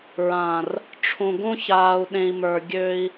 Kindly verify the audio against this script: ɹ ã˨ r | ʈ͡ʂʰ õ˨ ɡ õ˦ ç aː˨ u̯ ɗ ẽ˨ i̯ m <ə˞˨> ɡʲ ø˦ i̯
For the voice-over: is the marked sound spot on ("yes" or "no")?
yes